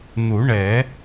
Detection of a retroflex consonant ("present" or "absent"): present